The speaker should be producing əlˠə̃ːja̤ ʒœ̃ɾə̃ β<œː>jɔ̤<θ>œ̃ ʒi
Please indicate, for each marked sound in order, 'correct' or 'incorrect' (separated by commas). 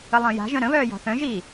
correct, correct